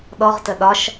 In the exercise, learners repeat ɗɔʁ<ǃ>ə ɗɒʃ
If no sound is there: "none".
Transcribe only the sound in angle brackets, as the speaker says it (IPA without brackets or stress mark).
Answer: t